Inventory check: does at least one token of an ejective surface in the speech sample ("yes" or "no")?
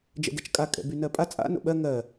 yes